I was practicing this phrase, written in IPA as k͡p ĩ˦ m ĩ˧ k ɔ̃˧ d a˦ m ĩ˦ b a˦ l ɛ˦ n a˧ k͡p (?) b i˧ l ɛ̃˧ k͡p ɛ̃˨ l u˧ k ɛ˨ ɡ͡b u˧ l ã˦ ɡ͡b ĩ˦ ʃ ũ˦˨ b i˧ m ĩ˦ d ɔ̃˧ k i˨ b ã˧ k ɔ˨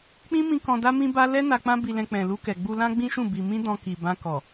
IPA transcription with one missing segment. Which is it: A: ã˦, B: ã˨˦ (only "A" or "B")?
A